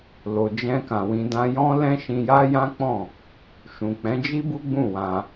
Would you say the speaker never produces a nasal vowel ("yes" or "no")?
no